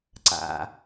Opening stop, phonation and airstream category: click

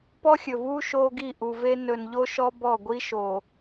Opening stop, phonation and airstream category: plain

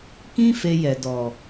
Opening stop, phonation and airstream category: plain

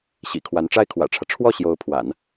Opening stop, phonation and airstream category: aspirated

